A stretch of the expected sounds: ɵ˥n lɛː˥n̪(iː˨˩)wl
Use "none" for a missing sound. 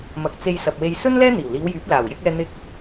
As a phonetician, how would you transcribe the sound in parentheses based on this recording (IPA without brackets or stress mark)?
iː˨˩